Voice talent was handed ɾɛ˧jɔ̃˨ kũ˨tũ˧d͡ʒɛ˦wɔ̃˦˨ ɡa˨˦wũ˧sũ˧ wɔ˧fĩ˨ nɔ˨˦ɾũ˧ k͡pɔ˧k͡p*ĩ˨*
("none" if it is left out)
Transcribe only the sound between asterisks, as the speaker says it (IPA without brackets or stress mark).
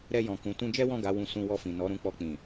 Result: ĩ˨